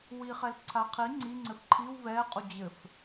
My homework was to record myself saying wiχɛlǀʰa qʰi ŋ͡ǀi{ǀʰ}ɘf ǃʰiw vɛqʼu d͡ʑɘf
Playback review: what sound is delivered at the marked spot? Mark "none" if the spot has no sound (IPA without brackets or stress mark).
ŋ͡ǀ